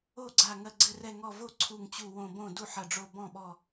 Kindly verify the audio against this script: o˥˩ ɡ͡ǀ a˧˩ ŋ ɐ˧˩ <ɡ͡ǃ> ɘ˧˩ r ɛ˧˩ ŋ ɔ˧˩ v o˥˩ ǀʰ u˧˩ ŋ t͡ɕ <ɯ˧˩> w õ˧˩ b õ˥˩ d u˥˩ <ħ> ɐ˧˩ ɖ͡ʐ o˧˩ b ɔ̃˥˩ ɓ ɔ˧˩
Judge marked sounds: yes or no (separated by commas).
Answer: no, no, yes